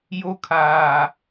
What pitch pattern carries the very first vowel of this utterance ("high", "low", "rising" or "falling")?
high